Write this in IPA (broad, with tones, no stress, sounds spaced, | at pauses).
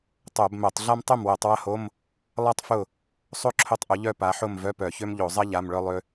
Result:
tˤ o˧˩˧ b m œ˧˩˧ tˤ ɮ a˥ m tˤ ʊ˥˨ m w œ˧˩˧ tˤ w ɐ˥ h o˧˥˧ m | lˠ a˥ tˤ f ʊ˥˨ | sˤ o˥ ǁʰ ʊ˧˥˧ tˤ ʔ ʊ˨˦ ʎ œ˥˨ p a˨˦ ħ ʊ˥˨ m v œ˧˥˧ p œ˧˩˧ ç ø˥ m ʎ o˧˩˧ zˤ ɐ˥ ʎ a˧˥˧ m ɭ œ˥ lˠ ø˥